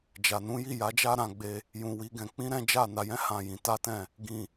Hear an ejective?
no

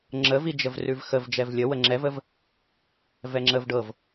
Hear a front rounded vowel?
no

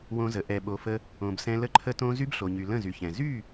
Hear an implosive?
yes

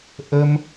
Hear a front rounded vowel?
no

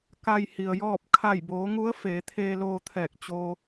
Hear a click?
no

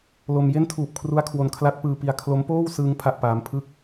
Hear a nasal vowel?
no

